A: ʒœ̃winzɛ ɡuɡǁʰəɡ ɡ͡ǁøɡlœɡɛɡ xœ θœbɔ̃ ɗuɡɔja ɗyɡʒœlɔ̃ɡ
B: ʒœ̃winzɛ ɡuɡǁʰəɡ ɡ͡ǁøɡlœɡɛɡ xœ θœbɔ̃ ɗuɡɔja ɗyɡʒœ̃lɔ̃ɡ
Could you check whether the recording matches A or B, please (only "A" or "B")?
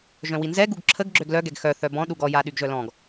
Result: A